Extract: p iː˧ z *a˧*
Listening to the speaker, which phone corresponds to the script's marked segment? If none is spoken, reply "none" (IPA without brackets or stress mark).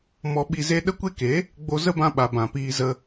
ə˧